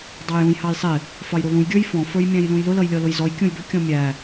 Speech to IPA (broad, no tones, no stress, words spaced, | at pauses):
dˤɑjũj hɑjsˤɪ | fɑjɾulũj ɡʲə˞jfɔ̃ fə˞jmʲæ̃jlũjlʊ lʌjlʲɔlʊjzɔj kʲũjbɪ kʲɔ̃mʲæ